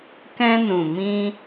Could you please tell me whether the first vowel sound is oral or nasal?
nasal